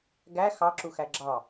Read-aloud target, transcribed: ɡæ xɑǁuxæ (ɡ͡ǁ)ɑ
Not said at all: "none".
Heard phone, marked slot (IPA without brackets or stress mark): ɡ͡ǁ